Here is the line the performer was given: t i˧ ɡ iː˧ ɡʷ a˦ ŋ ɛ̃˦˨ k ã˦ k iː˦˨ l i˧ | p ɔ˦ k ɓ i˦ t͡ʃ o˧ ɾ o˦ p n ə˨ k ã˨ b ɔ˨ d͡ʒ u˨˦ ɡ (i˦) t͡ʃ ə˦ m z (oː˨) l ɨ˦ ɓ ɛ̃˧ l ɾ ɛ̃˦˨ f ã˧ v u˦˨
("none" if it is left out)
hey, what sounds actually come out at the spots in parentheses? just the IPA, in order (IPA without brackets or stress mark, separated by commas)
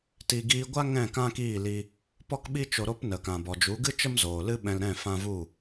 ɨ˦, oː˨